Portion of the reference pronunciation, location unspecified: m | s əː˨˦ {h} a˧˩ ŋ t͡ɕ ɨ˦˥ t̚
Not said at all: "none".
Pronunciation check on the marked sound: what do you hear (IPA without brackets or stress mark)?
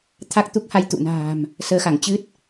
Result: x